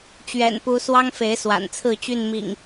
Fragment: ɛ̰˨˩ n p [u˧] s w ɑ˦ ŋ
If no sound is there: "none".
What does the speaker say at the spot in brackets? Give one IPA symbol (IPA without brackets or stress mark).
u˨˦